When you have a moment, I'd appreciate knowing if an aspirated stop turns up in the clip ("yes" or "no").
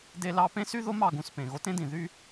no